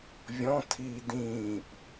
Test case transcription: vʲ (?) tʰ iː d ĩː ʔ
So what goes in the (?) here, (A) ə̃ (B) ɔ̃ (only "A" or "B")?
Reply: B